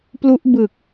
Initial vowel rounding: rounded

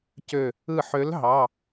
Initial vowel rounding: rounded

